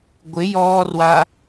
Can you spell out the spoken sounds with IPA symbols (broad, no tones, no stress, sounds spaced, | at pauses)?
ɡʷ ɪ j ɔː r w a